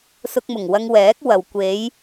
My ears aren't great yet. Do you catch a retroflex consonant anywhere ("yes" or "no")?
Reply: no